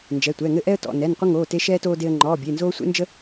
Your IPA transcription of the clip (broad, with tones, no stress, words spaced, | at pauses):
nd͡ʒɛ˩˧˩tʷɛ˩˧˩ŋɘ˦ ʔɛ˦ə̯tɔ̰˩˧˩ nɛ˩˧˩nqʷə˦ ŋoː˩˧˩te˦ʃɛː˦ toː˦de˦ə̯ ŋ͡ǃɔː˩˧˩bʲe˩˧˩nzoː˦ sʷḛ˦nd͡ʒə˦